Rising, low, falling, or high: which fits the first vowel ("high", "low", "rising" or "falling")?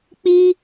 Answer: high